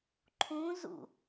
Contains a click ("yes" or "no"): yes